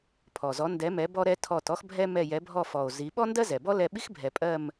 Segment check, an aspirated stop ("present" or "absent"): present